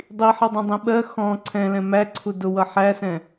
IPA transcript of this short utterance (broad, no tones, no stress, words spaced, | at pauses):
dˤiħʌdˤɛ̃dˤĩ ɓɜ xɔ̃ ǀʰɛ̃lɛ̃ mæǀʰu dʊwʌ ħæsɛ̃